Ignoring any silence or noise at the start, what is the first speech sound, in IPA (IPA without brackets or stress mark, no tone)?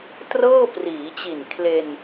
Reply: t